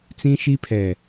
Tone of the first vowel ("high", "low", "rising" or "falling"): high